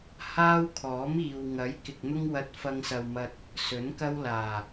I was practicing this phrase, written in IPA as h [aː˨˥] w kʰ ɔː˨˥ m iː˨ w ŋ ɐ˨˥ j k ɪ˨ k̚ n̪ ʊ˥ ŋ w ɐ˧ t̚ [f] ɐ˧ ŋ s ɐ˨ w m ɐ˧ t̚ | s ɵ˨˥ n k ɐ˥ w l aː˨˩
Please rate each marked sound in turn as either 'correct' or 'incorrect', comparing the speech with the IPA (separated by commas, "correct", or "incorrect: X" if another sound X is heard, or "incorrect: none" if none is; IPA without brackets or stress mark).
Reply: incorrect: aː˥, correct